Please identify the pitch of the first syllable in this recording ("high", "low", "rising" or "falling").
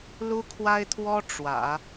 high